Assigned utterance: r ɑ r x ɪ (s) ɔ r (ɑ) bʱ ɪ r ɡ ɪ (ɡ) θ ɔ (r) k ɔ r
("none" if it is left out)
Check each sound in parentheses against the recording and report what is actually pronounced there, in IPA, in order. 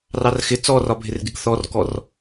t͡s, ɒ, ɡ, r

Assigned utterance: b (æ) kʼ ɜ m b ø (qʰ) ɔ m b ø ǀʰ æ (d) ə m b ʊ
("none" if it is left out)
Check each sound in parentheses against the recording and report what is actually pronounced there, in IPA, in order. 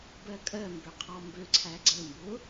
ɜ, qʰ, ɡ͡ǀ

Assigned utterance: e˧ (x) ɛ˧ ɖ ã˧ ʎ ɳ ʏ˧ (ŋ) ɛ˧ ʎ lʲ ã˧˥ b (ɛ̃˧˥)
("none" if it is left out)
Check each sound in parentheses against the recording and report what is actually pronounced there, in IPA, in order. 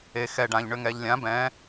x, ŋ, ɛ̃˧˥

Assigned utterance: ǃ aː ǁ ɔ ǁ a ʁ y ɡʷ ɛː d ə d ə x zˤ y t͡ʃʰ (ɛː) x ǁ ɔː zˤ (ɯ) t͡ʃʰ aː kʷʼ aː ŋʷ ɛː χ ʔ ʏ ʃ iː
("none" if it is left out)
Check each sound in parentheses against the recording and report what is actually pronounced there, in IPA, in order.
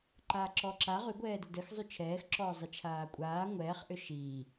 ɛː, ɯ

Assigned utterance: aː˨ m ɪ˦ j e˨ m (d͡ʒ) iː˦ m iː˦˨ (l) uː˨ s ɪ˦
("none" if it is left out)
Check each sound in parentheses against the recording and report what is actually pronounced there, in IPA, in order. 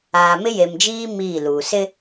d͡ʒ, l

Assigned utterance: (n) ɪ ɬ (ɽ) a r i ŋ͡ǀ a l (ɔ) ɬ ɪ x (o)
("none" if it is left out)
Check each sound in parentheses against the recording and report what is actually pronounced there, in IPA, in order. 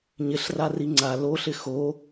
ɲ, r, o, o

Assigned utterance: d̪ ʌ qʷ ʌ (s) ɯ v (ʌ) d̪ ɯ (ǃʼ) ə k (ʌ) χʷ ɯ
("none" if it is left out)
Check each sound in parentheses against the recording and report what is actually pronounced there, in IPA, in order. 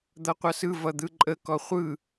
s, ʌ, ǃʼ, ɔ

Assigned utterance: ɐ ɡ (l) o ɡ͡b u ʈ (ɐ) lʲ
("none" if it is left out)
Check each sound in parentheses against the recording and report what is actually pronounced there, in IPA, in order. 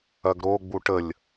ɾ, ə

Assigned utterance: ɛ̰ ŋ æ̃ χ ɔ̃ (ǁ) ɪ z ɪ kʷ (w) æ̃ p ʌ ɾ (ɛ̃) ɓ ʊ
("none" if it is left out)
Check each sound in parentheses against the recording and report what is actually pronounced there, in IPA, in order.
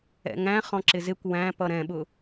ǁ, w, ɛ̃

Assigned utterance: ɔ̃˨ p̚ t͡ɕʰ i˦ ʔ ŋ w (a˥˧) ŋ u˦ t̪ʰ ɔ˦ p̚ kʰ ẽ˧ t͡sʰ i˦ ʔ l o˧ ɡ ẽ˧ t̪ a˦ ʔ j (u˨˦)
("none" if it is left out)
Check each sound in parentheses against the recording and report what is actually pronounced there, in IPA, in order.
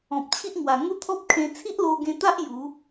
a˨˩, u˨˦

